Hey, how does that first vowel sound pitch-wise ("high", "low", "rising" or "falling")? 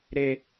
high